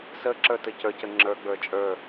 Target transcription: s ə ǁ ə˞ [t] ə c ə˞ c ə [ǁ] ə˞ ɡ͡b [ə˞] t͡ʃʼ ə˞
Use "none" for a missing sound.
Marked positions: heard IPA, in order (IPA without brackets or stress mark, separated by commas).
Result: t, ŋ͡ǁ, ə˞